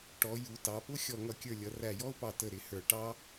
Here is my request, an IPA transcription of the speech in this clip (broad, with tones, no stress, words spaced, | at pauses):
ʈɔ˩˧ju˩˧ tɑ˩˧pʊ˥ xʲɔ˧˩ŋʌ˧˩kʲə˞˧˩lʲʌ˩˧ ræ˧˩jɔ˥ʊ̯pɑ˧˩ tə˧˩ɾɪ˩˧ hə˞˧˩ ʈɑ˥